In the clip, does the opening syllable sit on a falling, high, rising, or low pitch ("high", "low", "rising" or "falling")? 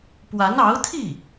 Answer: rising